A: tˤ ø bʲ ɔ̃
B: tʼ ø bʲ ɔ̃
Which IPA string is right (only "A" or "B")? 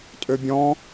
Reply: B